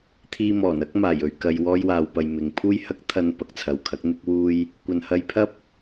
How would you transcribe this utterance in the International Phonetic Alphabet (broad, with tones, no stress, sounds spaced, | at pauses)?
t̪ʰ iː˧ m ɔː˨˩ n ɐ˥ k̚ m aː˨˩ j ɵ˨ ɥ k ɐ˧ j w ɔː˥ j w aː˧ w p ɐ˧ j m ɪ˨ ŋ pʰ uː˥ j h ɐ˥ k̚ t̪ʰ ɐ˥ n p ɐ˨ k̚ t͡sʰ ɐ˨ w kʰ ɐ˨˥ k̚ n̪ ɪ˥ k̚ w uː˥ j | kʷ ɐ˨ n h ɐ˧ j pʰ ɐ˥ p̚